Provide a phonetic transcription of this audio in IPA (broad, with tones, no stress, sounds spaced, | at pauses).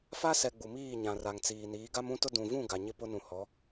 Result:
f a˦ s ɛ˨ ɡ͡b u˨ m iː˦˨ ɲ ã˨ r a˨ ŋ t͡s iː˨ n iː˨˦ ɡ a˦ m ũ˦ t ʊ˦ d ũ˨ v ũ˦˨ ɡ a˨ ɲ ɪ˦ p ʊ˦ n ũ˨ h ɔ˨˦